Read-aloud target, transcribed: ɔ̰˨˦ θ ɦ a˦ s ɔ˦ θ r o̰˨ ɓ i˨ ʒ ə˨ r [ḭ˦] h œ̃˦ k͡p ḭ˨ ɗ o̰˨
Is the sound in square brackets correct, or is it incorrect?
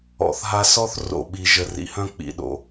incorrect